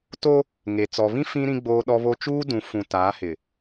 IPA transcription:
to˦ | ŋe˨ t͡sɔ˨βĩ˦ fĩ˦ ɾĩ˦ɡ͡boː˦ɗɔ˦βo˦ t͡ʃuː˦dũ˨˦ fũ˨ taː˨˦hɪ˨

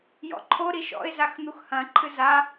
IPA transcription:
jɔ̰ǃʰo ɾiʃɔ̰ɪ̯ zaxn̪uxhɐ̃ ǃʰɨza

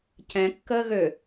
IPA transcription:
cɛ̃ kːəːɣø

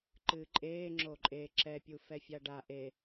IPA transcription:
ǃɨːǃʼeː ŋ͡ǁoǃʼe ǁɛpʲu fɛfʲaɖa ʔe

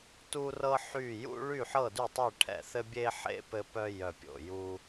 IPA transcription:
tu˥rɤ˥ ħy˦˨jṵ˥ ɭy˦˨ħɤ˦˨dy˦˨tˤɘ˦˨ ʈʰɛ̰˦˨θɘ˥ bʲe˥ħḛ˥ pɘ˥pœ˥ jœ˦˨pʲo̰˦˨ju˥

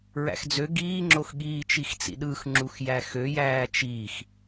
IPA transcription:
ɹæ̰xd͡zø ɡiːŋ͡ǁoxɠiː t͡ʃixt͡sḭɗɯx ŋ͡ǁuxjæxøjæː t͡ʃix

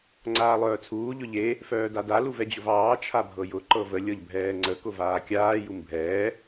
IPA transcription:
ŋ͡ǀaːlˠœːt͡sʰuː ʎʊʎe | fœːdada luvɛd͡ʑʊvɑː t͡ʃʰabʱɤjʊ ǃɤvə lʲɤʎbʱɛːŋ͡ǀə kʊvaːkʲaː jumbʱɛː

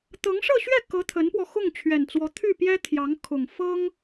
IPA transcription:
t̪ɤ˧˥ŋʂɤ˥˧ɕɥɛ˥˩kɤ˧˥ t̪ʰə˧˥npwɔ˧ xʊ˥˩ŋt͡ɕʰɥɛ˨˩nt͡swɔ˧˥ t̪ʰy˥˩ pjɛ˥t̪ʰjɑ˧˥ŋ kʰʊ˨˩ŋfɤ˥ŋ

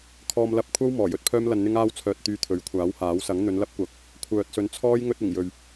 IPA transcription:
kʰɔː˧mlɐ˧p̚kʷʰɐ˥w mɔː˨˩jɵ˥t̚pʰœː˥mlɐ˧n n̪ɪ˥ŋaː˥wt͡sʰœː˧t̚ t̪yː˧t̪ʰɵ˨˥ɥkʷʰaː˨˥whaː˨˥w sɐ˨˥ŋn̪ɵ˨˧nlɐ˥p̚kʷɐ˨k̚ | kʷʰœː˨t̚sɵ˨˥nt͡sʰɔː˥j ŋɵ˧t̚ɪ˨˩ŋjɵ˨ɥ

